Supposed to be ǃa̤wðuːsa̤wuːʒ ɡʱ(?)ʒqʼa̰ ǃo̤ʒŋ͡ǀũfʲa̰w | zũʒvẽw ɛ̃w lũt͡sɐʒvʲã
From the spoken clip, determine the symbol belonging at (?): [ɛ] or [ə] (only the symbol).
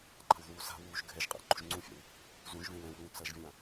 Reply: ɛ